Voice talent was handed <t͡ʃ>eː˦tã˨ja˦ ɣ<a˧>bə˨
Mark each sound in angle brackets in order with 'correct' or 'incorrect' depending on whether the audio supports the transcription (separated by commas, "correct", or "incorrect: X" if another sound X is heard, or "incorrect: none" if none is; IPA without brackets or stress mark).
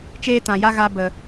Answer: correct, correct